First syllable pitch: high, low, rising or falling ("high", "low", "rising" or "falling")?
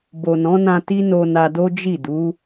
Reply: low